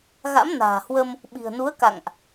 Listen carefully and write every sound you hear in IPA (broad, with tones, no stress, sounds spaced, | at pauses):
ɣ a̰˧˥ m n a̤ː˨˩ h w ə˧ m | ɓ i̤˨˩ ə̯ n u˨˦ ə̯ k a̰˧˨ ŋ ʔ